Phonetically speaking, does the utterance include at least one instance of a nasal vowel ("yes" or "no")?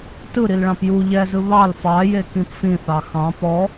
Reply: yes